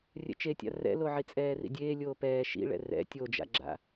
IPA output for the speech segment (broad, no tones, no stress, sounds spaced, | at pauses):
rʲ ɛ̰ t͡ʃ e tʲ a̰ r ɛ̰ l o ʕ i t͡sʼ ɛː r ḭ dʲ eː lʲ oː p ɛː ʃ ḭ ɭ ɛ̰ r ɛ̰ tʲ o d͡ʒ a̰ ɡ͡ǁ a̰